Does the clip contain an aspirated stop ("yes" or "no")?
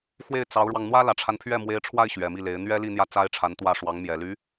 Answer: yes